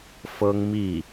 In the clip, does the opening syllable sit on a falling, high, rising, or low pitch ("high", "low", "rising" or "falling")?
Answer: high